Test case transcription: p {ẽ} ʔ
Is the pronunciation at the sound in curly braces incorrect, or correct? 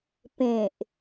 correct